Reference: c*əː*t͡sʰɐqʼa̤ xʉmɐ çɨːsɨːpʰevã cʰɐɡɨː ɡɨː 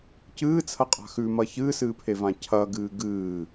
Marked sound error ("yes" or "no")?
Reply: yes